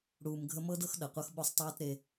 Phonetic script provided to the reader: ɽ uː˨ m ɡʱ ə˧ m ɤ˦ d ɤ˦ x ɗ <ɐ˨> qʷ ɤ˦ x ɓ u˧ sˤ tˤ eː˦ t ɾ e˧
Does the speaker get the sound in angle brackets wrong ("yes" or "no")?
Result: no